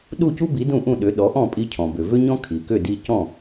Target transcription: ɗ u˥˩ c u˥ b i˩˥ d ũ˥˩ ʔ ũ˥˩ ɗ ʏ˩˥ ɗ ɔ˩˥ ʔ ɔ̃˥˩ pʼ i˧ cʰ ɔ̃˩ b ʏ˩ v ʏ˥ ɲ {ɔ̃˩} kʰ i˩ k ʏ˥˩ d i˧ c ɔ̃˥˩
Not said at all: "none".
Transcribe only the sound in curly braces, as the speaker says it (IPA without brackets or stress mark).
ɔ̃˥